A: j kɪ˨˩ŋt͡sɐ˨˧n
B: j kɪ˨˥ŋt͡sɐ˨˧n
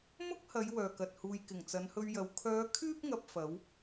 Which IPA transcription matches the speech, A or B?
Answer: A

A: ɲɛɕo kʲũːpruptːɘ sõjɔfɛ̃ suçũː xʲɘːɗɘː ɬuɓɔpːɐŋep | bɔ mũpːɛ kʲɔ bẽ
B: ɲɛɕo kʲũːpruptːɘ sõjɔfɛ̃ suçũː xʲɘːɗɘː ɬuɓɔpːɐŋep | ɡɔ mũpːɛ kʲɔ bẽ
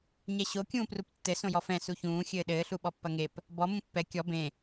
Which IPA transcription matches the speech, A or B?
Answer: A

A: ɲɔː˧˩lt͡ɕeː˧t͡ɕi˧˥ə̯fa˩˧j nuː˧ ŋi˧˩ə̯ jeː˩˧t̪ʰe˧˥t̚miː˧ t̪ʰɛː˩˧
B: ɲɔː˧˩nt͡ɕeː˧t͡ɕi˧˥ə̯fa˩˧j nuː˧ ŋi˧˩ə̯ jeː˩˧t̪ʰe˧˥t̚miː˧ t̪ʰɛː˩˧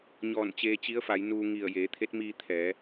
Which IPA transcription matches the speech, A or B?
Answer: B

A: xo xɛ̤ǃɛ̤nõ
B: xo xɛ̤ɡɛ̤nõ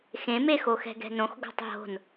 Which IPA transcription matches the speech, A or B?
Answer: B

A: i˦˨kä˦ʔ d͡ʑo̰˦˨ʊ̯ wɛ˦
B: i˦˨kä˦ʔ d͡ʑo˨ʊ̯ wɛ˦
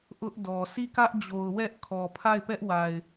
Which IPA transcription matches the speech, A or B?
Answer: B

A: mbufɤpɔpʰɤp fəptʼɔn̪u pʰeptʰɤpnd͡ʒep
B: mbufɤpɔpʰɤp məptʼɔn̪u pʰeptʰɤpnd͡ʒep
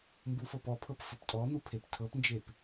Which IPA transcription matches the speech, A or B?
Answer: A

